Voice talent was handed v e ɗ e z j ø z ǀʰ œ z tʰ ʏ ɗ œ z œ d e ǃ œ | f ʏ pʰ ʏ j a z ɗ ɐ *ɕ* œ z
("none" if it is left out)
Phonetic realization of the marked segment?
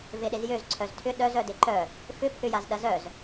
z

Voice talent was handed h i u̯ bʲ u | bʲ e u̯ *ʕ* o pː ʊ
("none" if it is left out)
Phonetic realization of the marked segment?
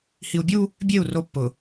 r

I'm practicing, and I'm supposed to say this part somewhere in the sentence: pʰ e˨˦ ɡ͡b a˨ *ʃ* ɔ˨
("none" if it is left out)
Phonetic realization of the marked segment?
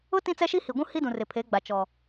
t͡ʃ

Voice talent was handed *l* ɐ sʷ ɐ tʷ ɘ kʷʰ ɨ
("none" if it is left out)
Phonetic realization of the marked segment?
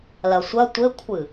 l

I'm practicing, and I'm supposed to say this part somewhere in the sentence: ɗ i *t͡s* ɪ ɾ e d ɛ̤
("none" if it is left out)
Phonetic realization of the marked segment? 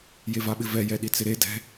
t͡s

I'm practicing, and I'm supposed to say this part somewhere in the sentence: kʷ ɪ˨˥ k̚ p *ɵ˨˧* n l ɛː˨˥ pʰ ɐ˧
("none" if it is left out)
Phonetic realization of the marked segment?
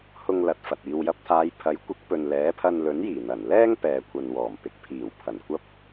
ɵ˨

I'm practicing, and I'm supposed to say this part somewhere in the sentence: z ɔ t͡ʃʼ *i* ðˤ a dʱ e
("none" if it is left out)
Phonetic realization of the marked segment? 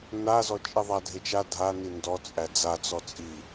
i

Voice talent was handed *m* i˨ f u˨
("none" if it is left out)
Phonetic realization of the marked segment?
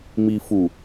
m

